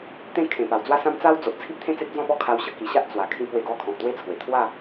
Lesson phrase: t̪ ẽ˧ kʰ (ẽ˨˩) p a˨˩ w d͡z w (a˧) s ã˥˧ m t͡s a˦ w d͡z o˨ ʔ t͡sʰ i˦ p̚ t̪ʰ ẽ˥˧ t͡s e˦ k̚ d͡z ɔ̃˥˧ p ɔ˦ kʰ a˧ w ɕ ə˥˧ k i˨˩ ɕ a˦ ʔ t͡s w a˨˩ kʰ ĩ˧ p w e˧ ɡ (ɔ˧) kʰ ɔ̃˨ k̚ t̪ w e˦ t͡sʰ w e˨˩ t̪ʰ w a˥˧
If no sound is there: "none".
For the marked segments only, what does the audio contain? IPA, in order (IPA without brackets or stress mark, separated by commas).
ẽ˨˩, a˦, ɔ˧